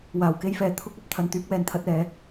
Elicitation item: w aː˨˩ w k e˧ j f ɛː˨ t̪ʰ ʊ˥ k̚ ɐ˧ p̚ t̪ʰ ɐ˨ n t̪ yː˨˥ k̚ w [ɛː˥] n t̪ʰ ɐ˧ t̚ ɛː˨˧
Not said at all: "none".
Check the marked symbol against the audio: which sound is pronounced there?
ɛː˨˩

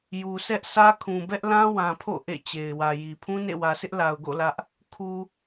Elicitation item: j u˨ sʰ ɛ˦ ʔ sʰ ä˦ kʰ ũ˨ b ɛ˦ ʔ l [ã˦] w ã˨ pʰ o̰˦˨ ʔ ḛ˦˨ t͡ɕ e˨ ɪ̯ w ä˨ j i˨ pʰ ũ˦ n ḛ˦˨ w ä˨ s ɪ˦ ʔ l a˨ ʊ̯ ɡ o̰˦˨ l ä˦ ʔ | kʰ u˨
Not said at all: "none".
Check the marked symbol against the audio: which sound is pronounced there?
ã˦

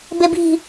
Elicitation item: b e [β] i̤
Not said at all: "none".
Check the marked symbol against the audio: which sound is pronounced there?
b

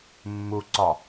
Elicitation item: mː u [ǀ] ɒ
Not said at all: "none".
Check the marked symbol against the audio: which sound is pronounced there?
ǀ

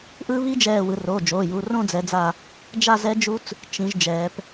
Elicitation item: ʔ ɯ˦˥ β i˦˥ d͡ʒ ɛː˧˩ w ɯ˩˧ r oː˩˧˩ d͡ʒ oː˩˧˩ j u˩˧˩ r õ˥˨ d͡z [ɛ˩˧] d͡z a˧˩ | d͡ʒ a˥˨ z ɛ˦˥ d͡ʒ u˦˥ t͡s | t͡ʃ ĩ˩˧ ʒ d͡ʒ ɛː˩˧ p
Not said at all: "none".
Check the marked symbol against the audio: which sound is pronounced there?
ɛ˩˧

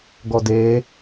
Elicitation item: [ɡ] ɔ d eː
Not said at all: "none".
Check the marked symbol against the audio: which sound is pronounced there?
ɡ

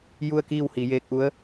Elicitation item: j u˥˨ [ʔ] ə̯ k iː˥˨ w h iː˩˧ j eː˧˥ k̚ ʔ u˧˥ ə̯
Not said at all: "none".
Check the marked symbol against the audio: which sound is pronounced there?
none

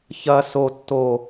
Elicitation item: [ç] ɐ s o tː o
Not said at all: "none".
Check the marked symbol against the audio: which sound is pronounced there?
ç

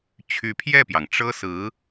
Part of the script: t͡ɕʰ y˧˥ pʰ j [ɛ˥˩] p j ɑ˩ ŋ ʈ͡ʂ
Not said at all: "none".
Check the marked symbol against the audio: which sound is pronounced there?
ɛ˥˩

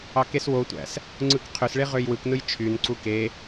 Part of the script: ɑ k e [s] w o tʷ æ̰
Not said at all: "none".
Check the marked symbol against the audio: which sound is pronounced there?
s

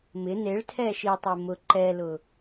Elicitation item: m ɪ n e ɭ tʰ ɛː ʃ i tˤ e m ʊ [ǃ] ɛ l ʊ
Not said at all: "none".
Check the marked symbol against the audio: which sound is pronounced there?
ǃ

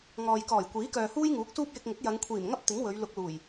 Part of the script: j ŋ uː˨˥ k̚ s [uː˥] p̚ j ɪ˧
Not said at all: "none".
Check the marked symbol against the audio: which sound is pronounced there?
uː˥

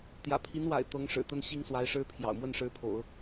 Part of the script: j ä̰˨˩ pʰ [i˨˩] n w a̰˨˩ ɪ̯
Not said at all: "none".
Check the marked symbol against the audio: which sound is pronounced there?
i˧˥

